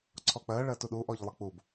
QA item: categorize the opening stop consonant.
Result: click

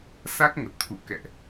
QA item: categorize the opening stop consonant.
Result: plain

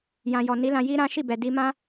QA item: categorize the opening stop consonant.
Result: plain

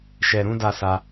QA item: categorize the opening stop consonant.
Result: plain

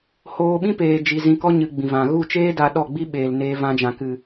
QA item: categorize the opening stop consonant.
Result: implosive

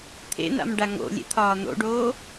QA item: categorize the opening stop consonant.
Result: aspirated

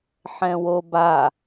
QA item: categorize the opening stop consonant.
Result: plain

